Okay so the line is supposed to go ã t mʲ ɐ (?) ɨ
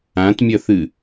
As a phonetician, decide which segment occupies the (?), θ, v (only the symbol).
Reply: θ